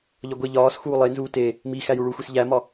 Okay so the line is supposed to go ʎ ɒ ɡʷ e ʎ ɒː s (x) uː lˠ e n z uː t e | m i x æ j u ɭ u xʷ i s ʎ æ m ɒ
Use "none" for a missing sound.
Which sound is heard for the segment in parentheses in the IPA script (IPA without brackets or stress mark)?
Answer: x